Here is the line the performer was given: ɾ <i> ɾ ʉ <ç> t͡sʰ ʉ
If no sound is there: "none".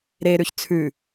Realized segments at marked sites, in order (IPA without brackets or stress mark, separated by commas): e, ç